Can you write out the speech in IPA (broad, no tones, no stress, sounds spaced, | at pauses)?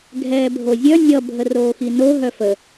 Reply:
ɡʱ ɛː bʱ o zʲ œ nʲ ʌ bʱ ə r oː x i n o ɦ œ f ə